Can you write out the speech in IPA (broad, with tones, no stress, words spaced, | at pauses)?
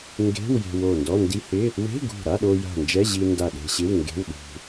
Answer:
ŋɡe̤˧˥˧w je̤˧wo˧˩ndɔ˧˥˧ ndi˧hɪ˧˥˧ | we̤˧˥˧ɡṳ˧˩ ɾa˧˥˧ɗo˧ ja̤˧˩nd͡ʒɛ˧˥˧ʑi˧ nda˧˩ ɗe̤˧ɕɪ˧˥˧w ŋɡe̤˧˥˧w ɗṳ˧